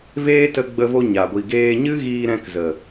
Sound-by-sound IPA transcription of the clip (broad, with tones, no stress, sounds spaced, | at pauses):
v eː˦ t ə˧ ɡ͡b ə˧ v o˧ ɲ a˨ ɡʷ i˨ ɡ eː˧ ɲ ɨ˦ ɣ iː˧ ɾ ɛ̃˧ k z ə˨